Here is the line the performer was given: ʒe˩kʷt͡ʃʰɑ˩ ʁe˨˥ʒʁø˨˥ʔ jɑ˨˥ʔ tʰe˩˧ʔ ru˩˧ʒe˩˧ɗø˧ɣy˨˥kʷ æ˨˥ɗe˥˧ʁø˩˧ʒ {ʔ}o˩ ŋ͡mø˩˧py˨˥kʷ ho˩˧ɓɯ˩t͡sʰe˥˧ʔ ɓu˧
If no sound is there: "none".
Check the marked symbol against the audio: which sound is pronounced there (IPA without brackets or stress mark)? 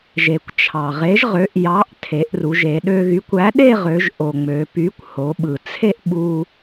ʔ